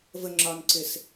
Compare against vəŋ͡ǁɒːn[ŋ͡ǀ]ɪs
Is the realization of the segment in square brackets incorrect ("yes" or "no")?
yes